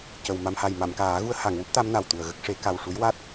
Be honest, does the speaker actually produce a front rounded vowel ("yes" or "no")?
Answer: no